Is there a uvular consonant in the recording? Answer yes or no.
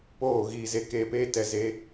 no